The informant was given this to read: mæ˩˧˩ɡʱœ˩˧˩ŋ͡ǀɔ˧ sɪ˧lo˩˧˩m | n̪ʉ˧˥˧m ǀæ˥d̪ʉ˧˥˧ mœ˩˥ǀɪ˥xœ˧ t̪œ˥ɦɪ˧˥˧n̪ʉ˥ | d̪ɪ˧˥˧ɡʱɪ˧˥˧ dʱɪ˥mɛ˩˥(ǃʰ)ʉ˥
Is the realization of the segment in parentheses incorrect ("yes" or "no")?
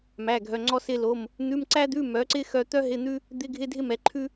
no